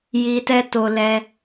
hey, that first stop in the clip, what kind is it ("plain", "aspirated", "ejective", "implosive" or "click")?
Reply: plain